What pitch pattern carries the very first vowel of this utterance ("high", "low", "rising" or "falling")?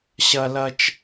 high